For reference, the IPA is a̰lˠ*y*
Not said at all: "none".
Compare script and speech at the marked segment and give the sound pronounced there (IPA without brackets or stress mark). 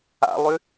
y